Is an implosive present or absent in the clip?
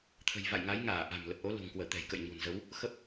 absent